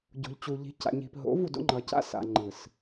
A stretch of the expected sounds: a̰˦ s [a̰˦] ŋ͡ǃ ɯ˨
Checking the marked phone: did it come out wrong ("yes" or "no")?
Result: yes